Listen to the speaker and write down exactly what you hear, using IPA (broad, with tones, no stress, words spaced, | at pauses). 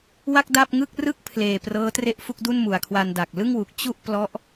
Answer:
wa˥˩k̚da˥˩p̚ŋɯ˥˩k̚ rɯ˥˩k̚pʰleː˨˩ prɤː˦˥tre˥˩ʔfu˥˩k̚du˥˩n mu˨˩a̯kʰwa˧nda˨˩k̚ lɯ˥˩ŋwu˨˩k̚ t͡ɕu˥˩ʔ plɔ˦˥ʔ